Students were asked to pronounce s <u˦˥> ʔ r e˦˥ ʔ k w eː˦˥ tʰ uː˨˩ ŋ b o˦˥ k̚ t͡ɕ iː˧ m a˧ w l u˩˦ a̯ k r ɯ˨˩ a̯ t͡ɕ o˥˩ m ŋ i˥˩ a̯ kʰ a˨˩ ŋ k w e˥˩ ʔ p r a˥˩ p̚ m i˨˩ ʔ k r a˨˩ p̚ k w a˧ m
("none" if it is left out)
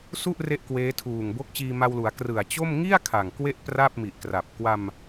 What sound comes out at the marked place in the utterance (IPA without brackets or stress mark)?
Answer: u˥˩